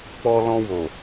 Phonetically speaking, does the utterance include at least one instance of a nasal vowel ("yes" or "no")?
yes